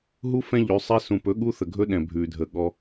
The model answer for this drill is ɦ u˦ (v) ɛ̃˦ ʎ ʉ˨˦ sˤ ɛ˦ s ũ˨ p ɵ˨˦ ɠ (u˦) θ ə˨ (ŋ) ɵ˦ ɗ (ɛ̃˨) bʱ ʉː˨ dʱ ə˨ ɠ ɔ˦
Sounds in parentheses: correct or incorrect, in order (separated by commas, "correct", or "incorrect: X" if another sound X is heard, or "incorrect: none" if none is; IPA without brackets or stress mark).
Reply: incorrect: f, correct, incorrect: ɡʱ, correct